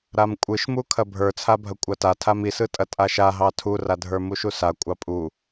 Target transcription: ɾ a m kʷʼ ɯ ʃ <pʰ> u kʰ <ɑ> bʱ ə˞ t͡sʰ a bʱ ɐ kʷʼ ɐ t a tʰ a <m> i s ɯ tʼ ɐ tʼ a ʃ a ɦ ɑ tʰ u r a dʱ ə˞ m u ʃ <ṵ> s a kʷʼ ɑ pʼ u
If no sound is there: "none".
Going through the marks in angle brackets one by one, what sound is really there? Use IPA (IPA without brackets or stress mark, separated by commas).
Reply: m, ɐ, m, u